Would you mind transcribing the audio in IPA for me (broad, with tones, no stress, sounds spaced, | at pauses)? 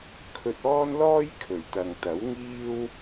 kʰ ɵ˧ t̚ ɔː˥ n l ɔː˥ j kʰ ɵ˨˩ ɥ t̪ ɐ˨ ŋ t̪ ɐ˨˥ w ŋ iː˥ w